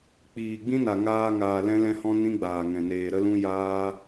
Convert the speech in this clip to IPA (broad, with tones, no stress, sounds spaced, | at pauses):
k͡p iː˨ ɡ͡b ĩ˦ n a˨ ŋ aː˧ ŋ aː˨ l ɛ̃˦ l ɛ̃˦ h ɔ̃˦ n ĩ˦ ɡ͡b aː˨ ŋ ɛ̃˨ n eː˧ ɾ ə˦ l ũ˦ j aː˦